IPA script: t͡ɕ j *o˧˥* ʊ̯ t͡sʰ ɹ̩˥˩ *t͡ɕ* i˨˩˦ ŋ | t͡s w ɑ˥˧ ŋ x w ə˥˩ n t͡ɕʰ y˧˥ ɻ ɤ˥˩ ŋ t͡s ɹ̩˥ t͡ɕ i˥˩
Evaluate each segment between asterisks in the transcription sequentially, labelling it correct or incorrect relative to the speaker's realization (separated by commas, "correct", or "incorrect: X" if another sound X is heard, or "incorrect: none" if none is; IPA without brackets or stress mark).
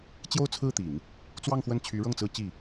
incorrect: o˥˧, incorrect: t̪